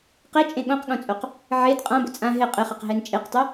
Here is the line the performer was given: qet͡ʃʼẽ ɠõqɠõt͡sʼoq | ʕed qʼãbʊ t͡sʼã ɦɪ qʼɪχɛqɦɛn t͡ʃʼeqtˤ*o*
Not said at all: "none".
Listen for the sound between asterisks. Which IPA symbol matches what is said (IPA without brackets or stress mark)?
o